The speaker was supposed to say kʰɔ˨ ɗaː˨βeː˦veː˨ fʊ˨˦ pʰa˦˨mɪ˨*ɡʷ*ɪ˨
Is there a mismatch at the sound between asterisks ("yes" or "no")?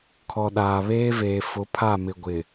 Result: no